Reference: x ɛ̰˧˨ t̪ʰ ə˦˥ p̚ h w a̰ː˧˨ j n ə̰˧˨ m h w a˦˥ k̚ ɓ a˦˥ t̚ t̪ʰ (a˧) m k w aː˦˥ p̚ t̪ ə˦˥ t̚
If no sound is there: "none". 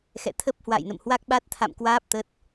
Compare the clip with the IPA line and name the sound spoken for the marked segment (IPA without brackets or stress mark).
a̰˧˨